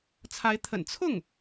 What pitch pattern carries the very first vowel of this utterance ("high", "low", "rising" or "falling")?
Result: rising